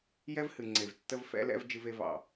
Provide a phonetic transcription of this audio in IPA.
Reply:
j ɛ˦ v h ɨ˨ ŋ͡ǀ e˨ v tː ə˦ v f ɛ̰˦ l ɛ̰˦ v d͡ʒ ɨ˦ v e˦ v ɑ̰˨

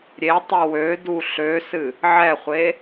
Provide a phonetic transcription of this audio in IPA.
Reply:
ɾʲ e tˤ i w ø d u ɬ ø s ɨ | ʕ ɛ χʷ e

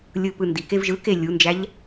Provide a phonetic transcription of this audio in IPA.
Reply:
lʲ ɯ p ɯ n d i k e v ʒ ɯ k e lʲ u n d͡ʒ æ ʎ

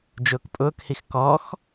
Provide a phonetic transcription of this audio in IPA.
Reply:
d͡ʒ ʊː k pʼ ʊː k h i x k ɔ x

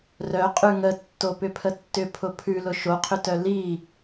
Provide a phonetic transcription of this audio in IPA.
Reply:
r œ qʼ ʉ ŋ ə tː o p ʏ pʰ ə tː ʏ pʰ ʊ pʰ ʉ l ʊ ʃ o qʰ ʏ t œ l i

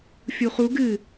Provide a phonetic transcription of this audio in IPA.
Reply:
fʲ u χ u ɡ ɨ

